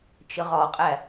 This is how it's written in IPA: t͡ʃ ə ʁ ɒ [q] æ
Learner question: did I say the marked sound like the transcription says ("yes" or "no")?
no